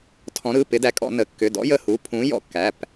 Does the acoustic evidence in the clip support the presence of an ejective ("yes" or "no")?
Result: yes